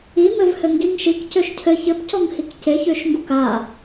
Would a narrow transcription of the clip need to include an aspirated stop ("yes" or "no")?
yes